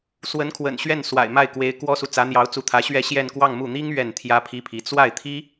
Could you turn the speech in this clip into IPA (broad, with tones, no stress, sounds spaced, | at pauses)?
s w ə˧˥ n kʰ w ə̰˨˩ n ɕ ɥ ɛ˥˩ n s w a̰˨˩ ɪ̯ m a˥˩ ɪ̯ k w e˧˥ ɪ̯ k w ɔ˥ s u˨ t͡s ä˧˥ n̪ j ɑ˧˥ ʊ̯ t͡s u˧˥ t̪ʰ ä˧˥ ɕ ɥ ɛ˥˧ ɕ j ɛ˥˧ n k w ɑ˥˧ ŋ m u˥˩ n̪ i˥ ŋ ɥ ɛ˥˩ n t̪ʰ j ä˥ pʰ i˥ pʰ i˧˥ t͡s w a˥˩ ɪ̯ t̪ʰ i˥